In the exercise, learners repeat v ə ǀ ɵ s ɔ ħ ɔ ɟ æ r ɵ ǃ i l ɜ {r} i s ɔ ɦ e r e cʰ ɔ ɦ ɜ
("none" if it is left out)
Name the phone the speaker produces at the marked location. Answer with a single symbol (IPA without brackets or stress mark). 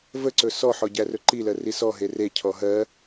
r